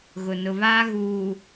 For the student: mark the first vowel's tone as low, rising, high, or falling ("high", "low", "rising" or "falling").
low